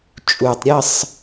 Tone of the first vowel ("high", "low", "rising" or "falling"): low